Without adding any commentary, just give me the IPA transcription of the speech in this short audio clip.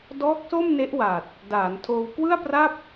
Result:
dɔː˦˥k̚so˥˩mne˦˥ʔwa˨˩t̚ | daː˩˦ntʰoː˧w kwɯ˥˩a̯pra˥˩p̚

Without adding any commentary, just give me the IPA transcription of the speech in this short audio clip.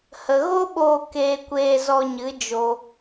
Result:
hə˨ɣo˦ɓoː˧ keː˧kʷeː˧zɔ˧ɲɨ˨˦ d͡ʒo˧

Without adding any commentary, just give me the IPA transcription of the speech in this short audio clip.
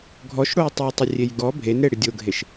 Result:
ɡʱɔʃɽojtˤojtˤɪ rʲejɡɔ bʱenɾe ɽɪdʲoɡʱeʃ

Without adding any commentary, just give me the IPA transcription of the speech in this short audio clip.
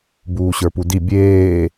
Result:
buːɕə˞pudi bʲeː

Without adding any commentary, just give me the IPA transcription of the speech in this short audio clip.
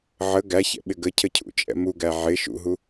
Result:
ʕə ɡæçɛ̰ɓɪ ɡəcʰəcʰṵt͡ʃʼɛ̰ muɡæ ʕɪ ʃṵɦu

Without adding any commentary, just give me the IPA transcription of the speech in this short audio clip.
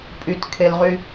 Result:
pʼytkʰelʁy

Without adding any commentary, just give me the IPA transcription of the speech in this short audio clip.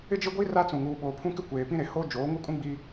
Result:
ɪ˦d͡ʒɪ˦ɡʷi˦ ra˦t͡sũ˨ ŋuː˨ɓoː˨pʰũ˦kɪ˦ kʷeː˨pĩ˦ɾe˨ ho˦ d͡ʒoː˨˦ŋu˦kʼũ˦ ɡ͡bi˦

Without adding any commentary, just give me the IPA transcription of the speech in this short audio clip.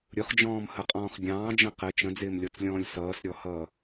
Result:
ɾʲʊχd͡ʒɔ̃ːmhəqʼɔ̃ːχ ɡʲɑ̃ːd͡ʒə̃ qɪ t͡ʃə̃d͡zɪːmlʲɔt͡slʲɔ̃ːlʲ sʌːsɾʲɔhʌː

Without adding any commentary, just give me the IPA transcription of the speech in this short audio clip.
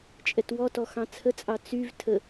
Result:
t͡ʃʼɛtwɔtɔ xɑ̃t͡sʰət͡sʼɑ t͡syv tʰə

